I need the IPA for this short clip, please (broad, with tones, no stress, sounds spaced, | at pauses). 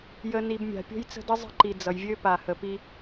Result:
j ə˨ n i˨ b mʲ a̤˨ pʲ o̤˦ j t͡s ə̤˦ d ə˦ zˤ ə̤˦ ǃ i˨ d͡z ʌ˨ j vʲ ø˦ p a˨ h ə˨ p i˦